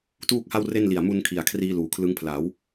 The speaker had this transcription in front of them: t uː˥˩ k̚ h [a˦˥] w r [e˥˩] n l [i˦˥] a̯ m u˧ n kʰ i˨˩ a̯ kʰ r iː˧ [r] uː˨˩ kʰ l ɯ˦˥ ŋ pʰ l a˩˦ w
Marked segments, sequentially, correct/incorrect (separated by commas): incorrect, correct, incorrect, incorrect